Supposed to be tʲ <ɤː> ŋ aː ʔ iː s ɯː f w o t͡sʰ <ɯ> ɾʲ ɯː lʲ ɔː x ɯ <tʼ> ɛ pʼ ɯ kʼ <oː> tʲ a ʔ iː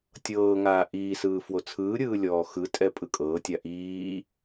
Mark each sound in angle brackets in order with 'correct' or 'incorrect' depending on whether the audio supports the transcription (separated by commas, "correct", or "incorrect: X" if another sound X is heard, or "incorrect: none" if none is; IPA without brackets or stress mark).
correct, incorrect: ɯː, correct, incorrect: ɤː